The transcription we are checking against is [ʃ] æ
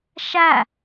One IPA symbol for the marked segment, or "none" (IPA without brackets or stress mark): ʃ